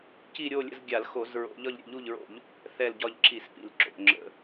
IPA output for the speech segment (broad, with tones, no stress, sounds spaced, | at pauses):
c i˧˩ ɾʲ o˧˩ lʲ ə̰˧˩ z ɡʲ a˧˩˧ l x o˧˩˧ z ɹ o̰˧˩˧ ʎ ɒ˧˩ ʎ ɾʲ ə̰˧˩ ʎ u˧˩ ʎ ɹ o̰˧˩˧ ʎ | θ ɛ˧˩ l ɟ ɒ˧˩ ʎ ǁʰ i˧˩˧ s p ḭ˧˩˧ l ǁ o̰˧˩ ŋ͡ǁ ə̰˧˩˧